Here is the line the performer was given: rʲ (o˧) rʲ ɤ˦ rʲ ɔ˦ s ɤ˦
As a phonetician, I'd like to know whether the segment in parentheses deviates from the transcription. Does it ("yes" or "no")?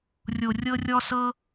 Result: no